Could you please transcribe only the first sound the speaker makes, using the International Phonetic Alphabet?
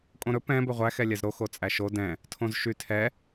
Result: kʼ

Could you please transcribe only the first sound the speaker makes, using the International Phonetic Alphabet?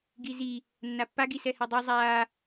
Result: ɡ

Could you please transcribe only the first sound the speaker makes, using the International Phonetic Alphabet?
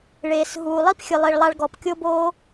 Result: ɭ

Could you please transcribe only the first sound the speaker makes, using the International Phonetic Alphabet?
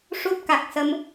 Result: ʂ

